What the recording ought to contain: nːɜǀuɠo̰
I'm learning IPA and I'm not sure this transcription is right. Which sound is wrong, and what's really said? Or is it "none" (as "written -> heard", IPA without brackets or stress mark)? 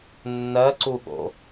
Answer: none